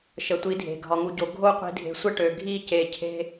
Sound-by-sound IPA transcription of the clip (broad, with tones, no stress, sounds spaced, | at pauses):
ʃ ə˨ tʷ i˨˦ dʱ e̤˨ ɡʱ ɒ˨ ŋ u˨ ɟ o˨ ɡʱ o˦ qʷ i̤˨ dʱ e̤˨ sʷ ə˦ ʈ ø˨ ɡʱ i˦˨ c e˧ cʰ e̤˦